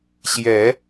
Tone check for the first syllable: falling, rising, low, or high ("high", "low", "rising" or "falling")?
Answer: rising